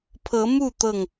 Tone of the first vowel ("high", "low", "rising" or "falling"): rising